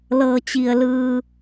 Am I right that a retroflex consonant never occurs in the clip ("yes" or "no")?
yes